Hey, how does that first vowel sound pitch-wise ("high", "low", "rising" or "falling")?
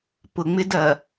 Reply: low